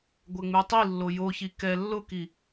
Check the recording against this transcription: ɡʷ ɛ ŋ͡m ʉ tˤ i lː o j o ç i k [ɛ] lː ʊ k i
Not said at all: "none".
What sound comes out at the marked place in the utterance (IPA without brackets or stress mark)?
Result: ɛ